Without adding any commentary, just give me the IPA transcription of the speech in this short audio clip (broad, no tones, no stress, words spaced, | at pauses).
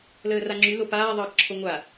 ləːraŋ͡ǁy lopaː ðˤəːkǁʰoŋʷa